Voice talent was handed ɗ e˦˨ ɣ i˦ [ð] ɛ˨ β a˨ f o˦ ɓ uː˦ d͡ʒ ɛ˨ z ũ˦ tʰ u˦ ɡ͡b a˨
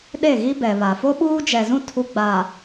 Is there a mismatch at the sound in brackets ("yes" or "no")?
yes